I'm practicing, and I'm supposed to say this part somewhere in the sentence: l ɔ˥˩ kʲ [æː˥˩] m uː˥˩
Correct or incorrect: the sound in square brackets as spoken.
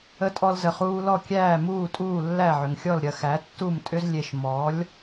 correct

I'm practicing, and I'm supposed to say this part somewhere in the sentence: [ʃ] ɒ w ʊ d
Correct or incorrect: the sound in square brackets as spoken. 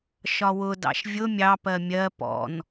correct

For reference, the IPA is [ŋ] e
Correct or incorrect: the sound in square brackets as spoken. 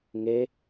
correct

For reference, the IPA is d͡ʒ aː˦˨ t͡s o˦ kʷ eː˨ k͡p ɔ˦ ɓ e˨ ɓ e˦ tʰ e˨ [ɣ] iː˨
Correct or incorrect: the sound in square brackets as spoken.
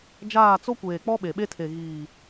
correct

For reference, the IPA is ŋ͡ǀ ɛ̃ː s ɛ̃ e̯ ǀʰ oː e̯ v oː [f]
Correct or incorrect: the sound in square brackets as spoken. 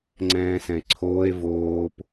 incorrect: p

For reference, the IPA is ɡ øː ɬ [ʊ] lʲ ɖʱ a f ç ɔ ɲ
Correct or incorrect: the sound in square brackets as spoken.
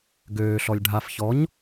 incorrect: ɔ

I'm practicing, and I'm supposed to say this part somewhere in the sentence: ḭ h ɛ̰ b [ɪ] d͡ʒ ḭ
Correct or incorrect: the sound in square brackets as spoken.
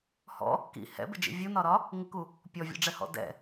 correct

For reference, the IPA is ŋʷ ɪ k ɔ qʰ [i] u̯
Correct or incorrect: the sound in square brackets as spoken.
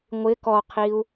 correct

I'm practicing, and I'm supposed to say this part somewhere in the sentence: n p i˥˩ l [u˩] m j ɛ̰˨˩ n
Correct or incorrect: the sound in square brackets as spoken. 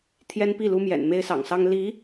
incorrect: u˥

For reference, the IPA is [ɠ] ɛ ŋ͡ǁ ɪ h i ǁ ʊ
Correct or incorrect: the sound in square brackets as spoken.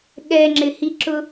correct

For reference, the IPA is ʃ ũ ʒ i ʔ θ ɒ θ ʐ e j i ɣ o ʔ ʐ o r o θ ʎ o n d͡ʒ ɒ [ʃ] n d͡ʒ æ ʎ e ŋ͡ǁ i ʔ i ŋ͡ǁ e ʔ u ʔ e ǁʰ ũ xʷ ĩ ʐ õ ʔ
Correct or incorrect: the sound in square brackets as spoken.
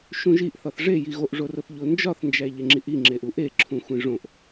incorrect: θ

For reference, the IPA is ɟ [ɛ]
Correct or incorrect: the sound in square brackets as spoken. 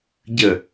incorrect: ə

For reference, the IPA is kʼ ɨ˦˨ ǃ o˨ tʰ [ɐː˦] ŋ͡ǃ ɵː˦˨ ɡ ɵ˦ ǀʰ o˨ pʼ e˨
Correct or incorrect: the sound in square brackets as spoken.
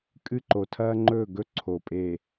correct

